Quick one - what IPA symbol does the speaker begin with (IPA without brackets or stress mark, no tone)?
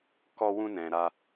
k